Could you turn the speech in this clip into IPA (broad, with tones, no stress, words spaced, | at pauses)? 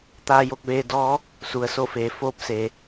t̪aː˧jo˥˨k̚ʋeː˧ dɔː˧˥ | su˩ə̯so˥˨feː˩˧ foː˧p̚seː˩